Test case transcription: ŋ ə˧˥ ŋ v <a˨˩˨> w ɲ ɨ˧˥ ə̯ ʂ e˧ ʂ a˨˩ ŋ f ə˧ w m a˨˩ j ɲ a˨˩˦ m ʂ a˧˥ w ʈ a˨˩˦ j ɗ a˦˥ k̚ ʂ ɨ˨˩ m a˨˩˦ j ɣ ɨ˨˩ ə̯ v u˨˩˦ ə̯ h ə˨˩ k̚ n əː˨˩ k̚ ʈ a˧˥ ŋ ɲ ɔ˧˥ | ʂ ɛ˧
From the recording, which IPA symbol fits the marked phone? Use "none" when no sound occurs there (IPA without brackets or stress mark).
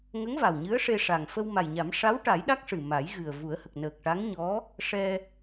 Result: a˨˩